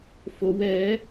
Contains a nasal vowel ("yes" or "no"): no